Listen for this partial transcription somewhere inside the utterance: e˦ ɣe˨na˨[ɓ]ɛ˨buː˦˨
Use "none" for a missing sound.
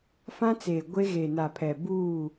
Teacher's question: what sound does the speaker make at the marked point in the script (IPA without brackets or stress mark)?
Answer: pʰ